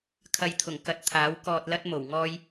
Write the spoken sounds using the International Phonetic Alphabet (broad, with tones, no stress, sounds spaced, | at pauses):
kʰ ɐ˨ j t̪ʰ ʊ˨˩ ŋ k ɐ˧ t̚ t̪ʰ aː˨˥ w k ɔː˨ t̚ l ɐ˧ t̚ m o˨˩ w ŋ ɔː˧ j